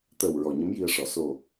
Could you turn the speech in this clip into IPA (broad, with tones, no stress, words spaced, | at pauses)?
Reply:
t̪əː˨˩w ɹɔ˨˩ɲə˧˥mji˧ə̯ʂɔ˨˩ so˨˩